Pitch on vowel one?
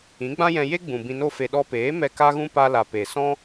rising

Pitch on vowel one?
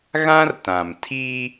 high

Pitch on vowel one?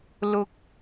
high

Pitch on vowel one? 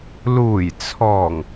low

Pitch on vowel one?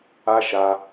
high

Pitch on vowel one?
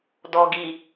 low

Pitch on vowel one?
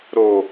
low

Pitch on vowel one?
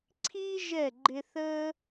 high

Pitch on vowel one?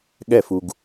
falling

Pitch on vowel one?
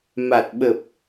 low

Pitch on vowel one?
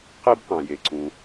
high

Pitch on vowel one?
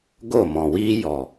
falling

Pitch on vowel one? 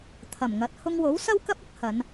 low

